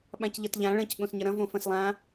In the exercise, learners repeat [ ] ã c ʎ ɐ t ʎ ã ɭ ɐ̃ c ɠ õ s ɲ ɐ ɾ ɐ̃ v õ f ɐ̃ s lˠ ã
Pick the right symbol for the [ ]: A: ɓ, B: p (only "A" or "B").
A